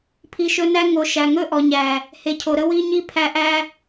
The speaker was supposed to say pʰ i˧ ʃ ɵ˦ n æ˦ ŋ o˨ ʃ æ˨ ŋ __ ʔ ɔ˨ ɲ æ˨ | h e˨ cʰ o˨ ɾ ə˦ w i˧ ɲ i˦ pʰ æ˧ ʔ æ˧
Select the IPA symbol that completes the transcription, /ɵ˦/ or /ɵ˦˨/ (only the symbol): ɵ˦˨